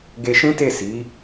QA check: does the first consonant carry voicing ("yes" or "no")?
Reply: yes